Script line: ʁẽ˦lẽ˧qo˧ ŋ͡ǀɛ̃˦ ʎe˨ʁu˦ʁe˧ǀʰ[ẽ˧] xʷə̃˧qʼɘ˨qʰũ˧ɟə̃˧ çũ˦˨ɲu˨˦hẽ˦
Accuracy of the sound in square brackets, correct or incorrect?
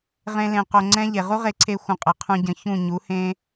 incorrect